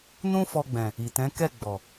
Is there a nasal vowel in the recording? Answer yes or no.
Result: yes